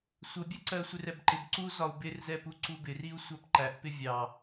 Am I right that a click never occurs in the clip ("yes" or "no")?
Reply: no